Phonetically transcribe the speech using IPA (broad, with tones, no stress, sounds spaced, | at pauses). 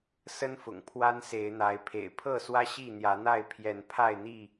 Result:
s ə˦ n f ʊ̰˨˩ ŋ pʰ w a˦ n s e˨˦ ɪ̯ n̪ a˨˦ ɪ̯ pʰ ḛ˨˩ ɪ̯ pʰ ɤ˥˨ s w ä˦ ɕ i˥˨ n̪ j ä˨˦ n̪ a˥˨ ɪ̯ pʰ j ɛ˨˦ n pʰ a˥˨ ɪ̯ n̪ i˥˨